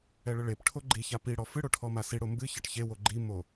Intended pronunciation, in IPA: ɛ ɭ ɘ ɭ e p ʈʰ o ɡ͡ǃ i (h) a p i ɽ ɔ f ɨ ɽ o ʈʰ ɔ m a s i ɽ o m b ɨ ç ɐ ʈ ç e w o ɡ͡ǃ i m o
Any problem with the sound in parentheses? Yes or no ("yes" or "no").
yes